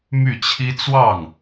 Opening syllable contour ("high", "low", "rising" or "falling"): falling